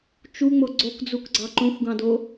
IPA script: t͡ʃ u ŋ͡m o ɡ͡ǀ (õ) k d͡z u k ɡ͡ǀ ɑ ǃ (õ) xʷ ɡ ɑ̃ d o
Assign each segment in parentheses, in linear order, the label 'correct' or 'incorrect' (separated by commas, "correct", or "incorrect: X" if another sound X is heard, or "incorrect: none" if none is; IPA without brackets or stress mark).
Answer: incorrect: o, correct